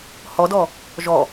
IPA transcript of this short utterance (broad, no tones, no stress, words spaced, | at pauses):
hɔdɔ | ʒɔ